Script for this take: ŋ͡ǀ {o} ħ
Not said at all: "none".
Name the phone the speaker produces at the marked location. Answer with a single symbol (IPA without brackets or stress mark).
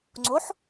o